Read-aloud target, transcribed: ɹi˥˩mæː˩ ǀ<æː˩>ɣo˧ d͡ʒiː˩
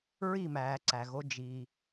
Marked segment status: incorrect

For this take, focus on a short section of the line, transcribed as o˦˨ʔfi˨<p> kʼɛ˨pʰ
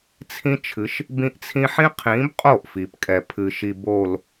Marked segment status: correct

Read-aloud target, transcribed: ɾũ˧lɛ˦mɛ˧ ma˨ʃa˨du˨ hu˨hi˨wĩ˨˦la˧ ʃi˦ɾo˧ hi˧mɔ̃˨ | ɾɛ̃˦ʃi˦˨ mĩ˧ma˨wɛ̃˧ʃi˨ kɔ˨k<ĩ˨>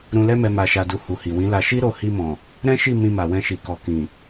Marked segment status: correct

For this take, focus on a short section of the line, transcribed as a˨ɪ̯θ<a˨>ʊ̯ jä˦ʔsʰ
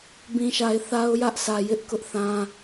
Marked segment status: incorrect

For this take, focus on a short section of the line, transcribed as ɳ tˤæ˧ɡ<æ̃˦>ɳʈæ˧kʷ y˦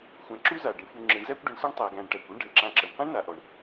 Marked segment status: incorrect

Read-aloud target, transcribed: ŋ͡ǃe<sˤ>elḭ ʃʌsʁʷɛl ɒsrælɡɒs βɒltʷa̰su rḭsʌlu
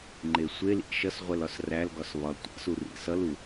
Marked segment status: incorrect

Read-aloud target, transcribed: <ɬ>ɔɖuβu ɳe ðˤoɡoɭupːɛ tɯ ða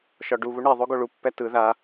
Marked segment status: incorrect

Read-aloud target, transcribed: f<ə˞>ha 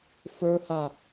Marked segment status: correct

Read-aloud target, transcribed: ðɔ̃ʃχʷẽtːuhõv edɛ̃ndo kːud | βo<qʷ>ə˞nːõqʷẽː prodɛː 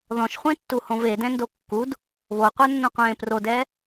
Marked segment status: correct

